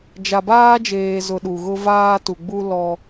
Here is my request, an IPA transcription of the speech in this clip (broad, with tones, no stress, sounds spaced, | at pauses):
d͡ʒ a˨ b aː˦ d͡ʒ eː˨ z ʊ˨ ɗ u˨ ɣ ʊ˦ v aː˦ t u˨ ɡ͡b u˦ l ɔ˦